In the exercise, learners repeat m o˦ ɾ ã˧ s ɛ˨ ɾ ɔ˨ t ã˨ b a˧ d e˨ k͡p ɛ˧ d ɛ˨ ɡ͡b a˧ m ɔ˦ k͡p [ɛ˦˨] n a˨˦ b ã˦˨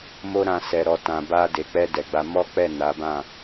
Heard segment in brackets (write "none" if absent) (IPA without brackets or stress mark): ɛ˦˨